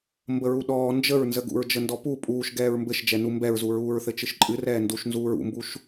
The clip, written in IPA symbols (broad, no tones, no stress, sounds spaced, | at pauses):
m b ə ɹ u ɗ ɔː n d͡ʒ ə ɹ n z ə ɡ ṵ ɹ d͡ʒ ə n d ɔ p u pʼ uː ʃ ɡ ɛː ɹ m b ɘ ʃ d͡ʒ ɛ n u m b ɛ ɹ z u ɹ uː ɹ θ ɘ t͡ʃ ɨ ʃ ǃʼ ɨ r ɛː n d u ʃ n z uː ɹ ṵ m b u ʃ